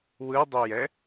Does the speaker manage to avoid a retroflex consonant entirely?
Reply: yes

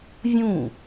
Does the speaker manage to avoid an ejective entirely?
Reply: yes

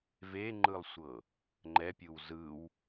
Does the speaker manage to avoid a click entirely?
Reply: no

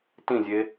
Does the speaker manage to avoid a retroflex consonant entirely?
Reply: yes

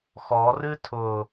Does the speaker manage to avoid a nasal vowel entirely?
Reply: yes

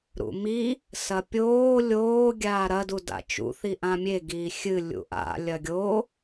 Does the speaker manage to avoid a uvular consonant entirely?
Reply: yes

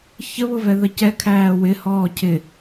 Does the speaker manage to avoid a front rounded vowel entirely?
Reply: yes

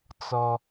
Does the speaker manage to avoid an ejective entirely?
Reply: yes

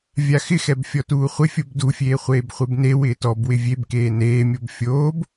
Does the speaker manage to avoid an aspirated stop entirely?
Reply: yes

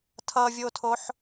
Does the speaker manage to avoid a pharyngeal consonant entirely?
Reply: no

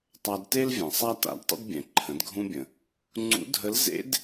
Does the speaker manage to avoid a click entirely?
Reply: no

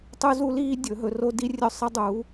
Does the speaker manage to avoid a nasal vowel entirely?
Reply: yes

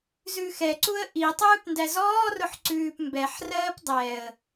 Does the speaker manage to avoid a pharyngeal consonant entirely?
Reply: no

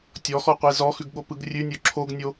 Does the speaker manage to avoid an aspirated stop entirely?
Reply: no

